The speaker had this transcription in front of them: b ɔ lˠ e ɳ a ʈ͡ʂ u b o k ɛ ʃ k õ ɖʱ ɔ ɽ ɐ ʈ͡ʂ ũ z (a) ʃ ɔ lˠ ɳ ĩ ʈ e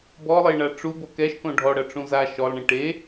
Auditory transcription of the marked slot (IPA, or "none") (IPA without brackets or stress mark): a